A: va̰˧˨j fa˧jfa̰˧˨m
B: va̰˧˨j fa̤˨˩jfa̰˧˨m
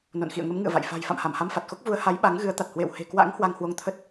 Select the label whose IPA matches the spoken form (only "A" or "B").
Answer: B